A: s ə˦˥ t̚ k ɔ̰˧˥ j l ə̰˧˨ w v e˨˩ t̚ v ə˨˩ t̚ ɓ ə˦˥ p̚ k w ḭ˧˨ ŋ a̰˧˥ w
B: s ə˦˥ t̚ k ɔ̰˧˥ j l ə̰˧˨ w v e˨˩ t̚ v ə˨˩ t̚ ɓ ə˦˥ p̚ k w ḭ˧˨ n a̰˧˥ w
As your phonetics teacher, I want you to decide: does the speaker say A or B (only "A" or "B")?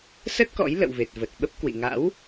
A